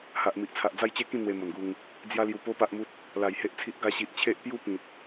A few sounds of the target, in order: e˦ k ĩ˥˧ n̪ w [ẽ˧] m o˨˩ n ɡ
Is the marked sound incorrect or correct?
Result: incorrect